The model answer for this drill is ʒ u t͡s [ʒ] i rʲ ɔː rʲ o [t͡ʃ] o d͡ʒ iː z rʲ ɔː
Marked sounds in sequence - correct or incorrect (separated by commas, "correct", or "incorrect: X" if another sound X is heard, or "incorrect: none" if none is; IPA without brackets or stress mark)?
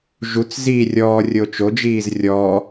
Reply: incorrect: z, correct